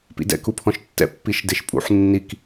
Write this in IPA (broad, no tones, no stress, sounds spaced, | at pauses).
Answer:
p ḭ d ɛ̰ k u pʰ ɔ̃ ʃ tː ɛ̰ pː i ʃ d e ʃ pʼ ṵ ħ nː i k